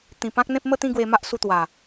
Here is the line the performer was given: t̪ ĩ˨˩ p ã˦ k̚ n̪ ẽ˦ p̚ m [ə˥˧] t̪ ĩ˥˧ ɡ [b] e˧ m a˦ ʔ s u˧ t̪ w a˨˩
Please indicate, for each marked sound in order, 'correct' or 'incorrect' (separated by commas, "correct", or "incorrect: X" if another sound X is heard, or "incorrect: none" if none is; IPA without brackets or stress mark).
correct, incorrect: w